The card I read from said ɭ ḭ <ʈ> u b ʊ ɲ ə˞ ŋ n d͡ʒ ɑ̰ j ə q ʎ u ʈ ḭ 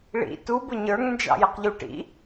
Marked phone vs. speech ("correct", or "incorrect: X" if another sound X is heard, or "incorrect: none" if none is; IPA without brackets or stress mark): incorrect: t